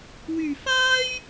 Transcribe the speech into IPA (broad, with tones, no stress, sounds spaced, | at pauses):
w yː˨ f aː˥ j